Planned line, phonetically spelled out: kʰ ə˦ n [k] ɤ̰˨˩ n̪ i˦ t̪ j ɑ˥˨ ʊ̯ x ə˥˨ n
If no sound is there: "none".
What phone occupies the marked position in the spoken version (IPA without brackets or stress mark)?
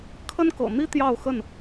k